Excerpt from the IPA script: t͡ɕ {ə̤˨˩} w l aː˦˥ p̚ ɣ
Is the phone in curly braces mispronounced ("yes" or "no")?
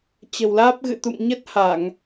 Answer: no